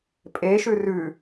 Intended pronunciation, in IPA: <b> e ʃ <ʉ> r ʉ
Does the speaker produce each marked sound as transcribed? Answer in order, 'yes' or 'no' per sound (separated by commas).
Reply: no, yes